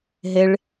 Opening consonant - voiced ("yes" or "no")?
yes